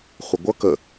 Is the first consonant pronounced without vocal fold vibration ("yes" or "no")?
yes